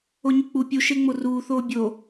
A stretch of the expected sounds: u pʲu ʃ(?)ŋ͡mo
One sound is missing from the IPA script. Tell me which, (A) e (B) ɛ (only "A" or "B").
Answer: A